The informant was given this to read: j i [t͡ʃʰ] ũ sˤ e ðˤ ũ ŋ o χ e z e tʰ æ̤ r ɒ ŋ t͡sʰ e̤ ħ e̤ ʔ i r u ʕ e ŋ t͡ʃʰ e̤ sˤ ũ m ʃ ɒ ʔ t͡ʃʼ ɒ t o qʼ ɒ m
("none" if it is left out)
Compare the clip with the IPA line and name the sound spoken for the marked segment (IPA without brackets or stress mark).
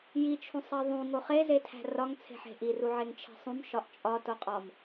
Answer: t͡ʃʰ